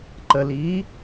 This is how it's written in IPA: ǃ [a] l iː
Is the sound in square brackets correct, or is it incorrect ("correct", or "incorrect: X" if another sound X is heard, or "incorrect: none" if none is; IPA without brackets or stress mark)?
incorrect: ə